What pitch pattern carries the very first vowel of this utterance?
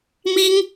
high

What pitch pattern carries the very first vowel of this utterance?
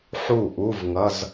falling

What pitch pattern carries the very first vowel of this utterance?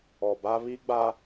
low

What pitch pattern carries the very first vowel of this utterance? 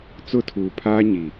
falling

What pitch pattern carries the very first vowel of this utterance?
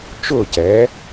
falling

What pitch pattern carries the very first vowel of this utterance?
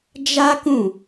high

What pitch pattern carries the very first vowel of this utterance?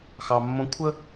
low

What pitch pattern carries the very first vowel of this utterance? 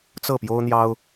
falling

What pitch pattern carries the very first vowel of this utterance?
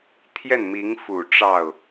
falling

